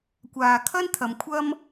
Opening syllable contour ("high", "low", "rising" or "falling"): low